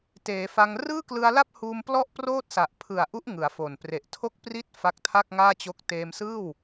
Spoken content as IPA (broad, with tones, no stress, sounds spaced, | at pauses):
t eː˩˦ f a˧ ŋ r ɯː˥˩ k l ɯ˧ a̯ l a˥˩ p̚ h uː˧ m p l ɔ˥˩ ʔ p r oː˥˩ t̚ s a˨˩ ʔ pʰ ɯ˨˩ a̯ ʔ u˦˥ ʔ ŋ ɯ˩˦ a̯ f o˨˩ n p r e˨˩ ʔ tʰ o˥˩ k̚ p r i˥˩ t̚ f a˦˥ k̚ tʰ a˥˩ k̚ ŋ aː˥˩ t͡ɕ o˦˥ k̚ t eː˧ m s ɯː˥˩ w